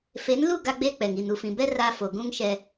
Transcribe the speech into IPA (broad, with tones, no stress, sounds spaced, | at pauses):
f e˨˦ n l u˦˨ ɡ a˦ ɡ͡b eː˦ k͡p ɛ˨ ŋ i˨ n u˨ f ĩ˨ b ɛ˦ r a˦ f o˨ ɡ ũ˦ ŋ ʃ ɛ˦